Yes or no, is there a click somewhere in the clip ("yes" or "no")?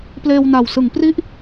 no